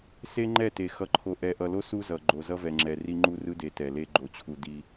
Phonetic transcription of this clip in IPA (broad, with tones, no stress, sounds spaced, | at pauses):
s e˦ ŋ͡ǃ ɛ˦˨ t e˨ x ʌ˨ ǃʰ o˨ ʔ ɛ˨ ʔ ʌ˨ l o˦ s u˦ z ʌ˨ ɡ͡ǃ o˨ z ʌ˦ v ɛ˨ ŋ͡ǁ ɛ˨ r i˦ ŋ͡ǃ u˦ r ɯ˦ d e˨ t ɛ˨ l e˦ ɡ͡ǃ o˨ t͡ɕʰ u˨ d i˦